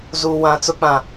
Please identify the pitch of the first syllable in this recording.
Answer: low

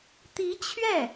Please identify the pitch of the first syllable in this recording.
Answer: rising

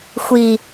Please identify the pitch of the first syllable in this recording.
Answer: low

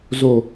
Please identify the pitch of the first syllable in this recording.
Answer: low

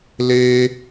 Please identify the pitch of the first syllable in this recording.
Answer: high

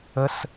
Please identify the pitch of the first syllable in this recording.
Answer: high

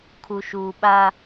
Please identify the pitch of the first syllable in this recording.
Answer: low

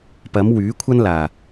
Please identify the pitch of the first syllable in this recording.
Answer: rising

